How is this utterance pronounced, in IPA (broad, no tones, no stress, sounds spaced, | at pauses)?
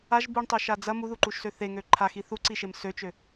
a ʒ b u ɳ tˤ ø ʃ a d͡z ɐ m u ð u ǃ u ʃ s ø θ e ŋ ø ǃʰ a x i θ u ǀ i ʃ e m s ø t͡ʃ ø